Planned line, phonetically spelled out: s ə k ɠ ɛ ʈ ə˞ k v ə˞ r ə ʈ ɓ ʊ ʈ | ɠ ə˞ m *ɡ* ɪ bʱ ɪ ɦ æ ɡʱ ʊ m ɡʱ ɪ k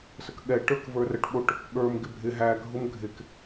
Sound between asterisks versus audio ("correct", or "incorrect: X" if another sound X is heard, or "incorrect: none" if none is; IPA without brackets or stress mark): correct